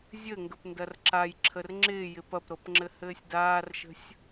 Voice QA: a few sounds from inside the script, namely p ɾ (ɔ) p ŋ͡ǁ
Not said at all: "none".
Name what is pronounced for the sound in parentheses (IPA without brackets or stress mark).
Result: ɤ